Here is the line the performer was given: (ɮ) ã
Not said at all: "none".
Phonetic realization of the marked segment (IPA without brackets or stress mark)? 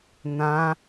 n̪